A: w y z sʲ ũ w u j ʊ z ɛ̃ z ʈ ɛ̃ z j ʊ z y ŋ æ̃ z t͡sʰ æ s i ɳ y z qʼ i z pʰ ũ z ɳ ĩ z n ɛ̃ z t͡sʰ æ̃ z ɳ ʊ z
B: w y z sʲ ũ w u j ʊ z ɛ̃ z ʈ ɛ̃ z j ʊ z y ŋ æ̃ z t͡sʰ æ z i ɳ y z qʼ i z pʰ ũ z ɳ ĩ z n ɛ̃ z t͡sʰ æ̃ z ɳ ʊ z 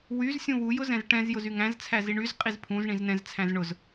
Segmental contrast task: B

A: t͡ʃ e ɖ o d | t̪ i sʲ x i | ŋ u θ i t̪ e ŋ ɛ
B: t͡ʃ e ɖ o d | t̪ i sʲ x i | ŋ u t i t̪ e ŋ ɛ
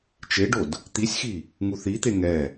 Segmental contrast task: A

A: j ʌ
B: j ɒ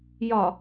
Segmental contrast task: B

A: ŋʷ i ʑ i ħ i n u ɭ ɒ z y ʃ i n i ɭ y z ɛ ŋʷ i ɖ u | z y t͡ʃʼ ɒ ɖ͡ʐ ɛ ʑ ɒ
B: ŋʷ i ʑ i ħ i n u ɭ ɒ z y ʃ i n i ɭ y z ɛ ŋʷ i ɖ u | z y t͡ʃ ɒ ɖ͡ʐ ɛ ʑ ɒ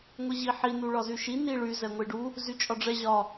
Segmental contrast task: A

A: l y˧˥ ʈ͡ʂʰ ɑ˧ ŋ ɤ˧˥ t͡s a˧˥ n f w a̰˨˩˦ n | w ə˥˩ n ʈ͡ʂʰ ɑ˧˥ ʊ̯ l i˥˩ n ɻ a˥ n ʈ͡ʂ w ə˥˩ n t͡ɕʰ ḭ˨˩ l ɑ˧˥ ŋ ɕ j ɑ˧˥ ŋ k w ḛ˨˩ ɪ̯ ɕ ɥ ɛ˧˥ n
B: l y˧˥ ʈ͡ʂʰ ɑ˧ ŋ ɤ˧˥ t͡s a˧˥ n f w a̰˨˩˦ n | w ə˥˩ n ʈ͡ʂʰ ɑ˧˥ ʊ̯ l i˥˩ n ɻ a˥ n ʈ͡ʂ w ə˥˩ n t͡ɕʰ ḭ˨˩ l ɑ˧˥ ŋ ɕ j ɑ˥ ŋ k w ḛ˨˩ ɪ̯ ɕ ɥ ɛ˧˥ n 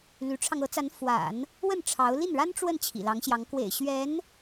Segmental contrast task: A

